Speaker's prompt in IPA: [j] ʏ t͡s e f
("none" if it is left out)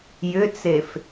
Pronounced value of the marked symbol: j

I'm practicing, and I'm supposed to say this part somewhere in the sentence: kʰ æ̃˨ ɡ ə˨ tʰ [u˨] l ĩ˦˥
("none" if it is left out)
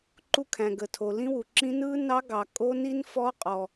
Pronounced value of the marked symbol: o˨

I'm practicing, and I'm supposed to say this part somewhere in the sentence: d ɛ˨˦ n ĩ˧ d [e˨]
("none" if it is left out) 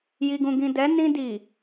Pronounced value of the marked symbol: i˨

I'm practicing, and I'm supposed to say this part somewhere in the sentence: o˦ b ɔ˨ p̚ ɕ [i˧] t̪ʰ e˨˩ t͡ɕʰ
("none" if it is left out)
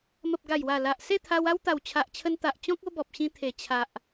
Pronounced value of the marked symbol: ĩ˧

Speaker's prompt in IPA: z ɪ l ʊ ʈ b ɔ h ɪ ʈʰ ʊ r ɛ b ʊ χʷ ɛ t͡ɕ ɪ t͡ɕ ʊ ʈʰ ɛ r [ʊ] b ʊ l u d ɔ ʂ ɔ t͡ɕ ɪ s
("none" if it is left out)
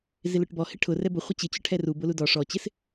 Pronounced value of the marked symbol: u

